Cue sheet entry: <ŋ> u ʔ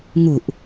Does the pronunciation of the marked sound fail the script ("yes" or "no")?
no